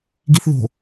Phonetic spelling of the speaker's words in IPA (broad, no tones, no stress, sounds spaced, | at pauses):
ɡ i θ ð o̤